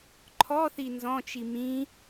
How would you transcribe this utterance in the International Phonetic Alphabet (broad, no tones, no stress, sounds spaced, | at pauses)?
ǃʰ ɔ θ i n z ɔ̃ t͡ʃ i m ĩ